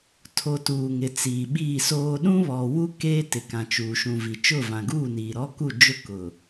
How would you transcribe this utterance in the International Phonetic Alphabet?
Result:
tʰ o˨ t uː˨ ŋ ɪ˨ t͡s iː˨ ɓ iː˦˨ s oː˦ ɗ ũ˦ β ɔ˨ w u˦ k eː˦ t ɪ˨ k ã˨ t͡ʃ uː˨ ʃ ũ˨ v i˨ t͡ʃ ʊ˦˨ v ã˨ ɡ uː˦˨ n iː˨ ɾ ɔ˦ k u˦˨ d͡ʒ ʊ˦ k ʊ˨

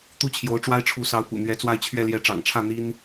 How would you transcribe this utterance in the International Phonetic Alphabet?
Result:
t̪ u˥ t͡ɕʰ j o˧˥ ʊ̯ ʈ͡ʂ w a˥ ɪ̯ ʈ͡ʂʰ u˧˥ s ɑ˧˥ ʊ̯ p ṵ˨˩ n̪ ɥ ɛ˧˥ t͡s w a˥˧ ɪ̯ t͡ɕʰ ɥ ɛ˥˩ l j ɛ˧˥ ʈ͡ʂ ɑ̰˨˩ ŋ ʈ͡ʂʰ ä˥˩ n̪ i˥ n

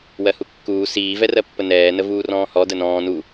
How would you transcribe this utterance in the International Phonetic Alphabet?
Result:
w ɜ h u kː uː s iː v ɛ r ɜ pː ə n ɛː n ə v uː r ɔ̃ː h ɔ d ə n ɔ̃ː n u

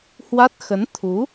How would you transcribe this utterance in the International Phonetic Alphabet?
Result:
h w a˦˥ t̚ x ə˨˦ n t̪ʰ u˨˦

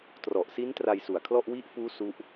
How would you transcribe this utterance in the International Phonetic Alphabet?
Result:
t r ɔ˨˩ ʔ s i˦˥ n t r a˧ j s u˨˩ a̯ kʰ l ɔ˥˩ ʔ w i˦˥ ʔ f uː˦˥ s u˦˥ ʔ

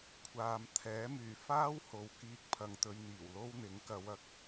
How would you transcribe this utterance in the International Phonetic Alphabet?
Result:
kʷʰ aː˨ m t̪ʰ ɛː˨˥ m yː˨˩ f aː˥ w h o˨ w k iː˧ k̚ pʰ ɐ˨˧ ŋ t̪ ɵ˨˧ ɥ n̪ iː˨˩ w l o˥ w n̪ ɪ˨˥ ŋ k ɐ˨˧ w ɐ˨˥ k̚

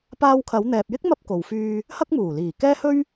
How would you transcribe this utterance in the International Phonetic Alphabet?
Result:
p aː˧ w kʰ ɐ˨˧ w n̪ ɛː˨ p̚ j ɪ˥ k̚ m ɐ˥ p̚ k o˨ w f yː˧ | h ɐ˥ k̚ m uː˨˩ l iː˨˩ k ɛː˥ h ɵ˥ ɥ

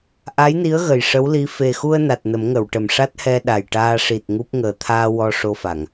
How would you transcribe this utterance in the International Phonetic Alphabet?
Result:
ʔ a˧˥ j n i˧˥ ə̯ ɣ ə˨˩ j ʂ ə˧˥ w l i˧˥ f e˨˩ x u˧ ə̯ n a˨˩ t̚ n ə˨˩˦ m ŋ ə˨˩˨ w ʈ ə˨˩ m ʂ a˦˥ t̚ h ɛ˧ ɗ a˨˩ j ʈ aː˧ ʂ i˨˩ t̚ ŋ u˦˥ p̚ ŋ əː˨˩ t̪ʰ aː˧ w ɔ˧ ʂ o˧ f a˨˩˨ ŋ

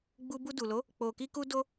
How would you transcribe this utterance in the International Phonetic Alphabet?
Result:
ɡ͡b u˦ b u˧ d u˨ l o˨˦ | k͡p o˧ k i˦ k u˦ d o˦

